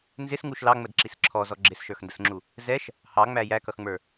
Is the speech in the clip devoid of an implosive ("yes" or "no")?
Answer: yes